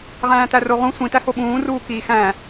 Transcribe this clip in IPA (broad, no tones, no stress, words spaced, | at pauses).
ʁæ̃ːtæroʁũ sʷĩtæho ɓũːruː kiːxæ̃